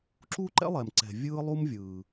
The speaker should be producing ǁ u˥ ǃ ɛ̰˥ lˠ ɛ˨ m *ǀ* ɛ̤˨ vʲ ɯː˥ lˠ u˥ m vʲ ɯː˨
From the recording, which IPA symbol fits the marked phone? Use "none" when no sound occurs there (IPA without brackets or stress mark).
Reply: ǀ